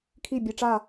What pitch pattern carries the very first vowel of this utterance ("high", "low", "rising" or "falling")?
falling